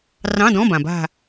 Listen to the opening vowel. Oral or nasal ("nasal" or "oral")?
nasal